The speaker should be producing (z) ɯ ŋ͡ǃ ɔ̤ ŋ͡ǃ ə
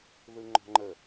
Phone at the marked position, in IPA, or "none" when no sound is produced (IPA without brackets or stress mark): ð